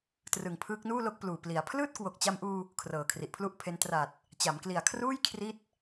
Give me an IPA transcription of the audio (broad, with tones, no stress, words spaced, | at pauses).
trɯ˨˩ŋpʰɯː˦˥k̚nuː˥˩lo˦˥k̚ pluː˨˩pli˩˦a̯ pʰlɯː˥˩t̚ kwo˨˩k̚t͡ɕa˧mʔuː˧ | kʰrɤː˨˩kʰri˨˩ʔpʰlu˥˩ʔpʰe˦˥n tra˨˩t̚ | t͡ɕa˩˦mkli˨˩a̯kʰruː˥˩j kʰri˥˩t̚